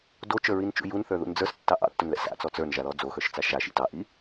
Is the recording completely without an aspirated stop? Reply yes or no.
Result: yes